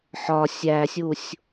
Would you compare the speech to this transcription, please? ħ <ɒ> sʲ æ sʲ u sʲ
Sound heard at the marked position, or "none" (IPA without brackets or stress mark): ɒ